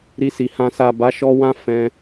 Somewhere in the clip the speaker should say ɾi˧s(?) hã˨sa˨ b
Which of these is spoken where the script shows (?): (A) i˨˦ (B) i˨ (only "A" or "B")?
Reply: B